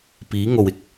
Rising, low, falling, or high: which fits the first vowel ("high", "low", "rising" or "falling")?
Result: rising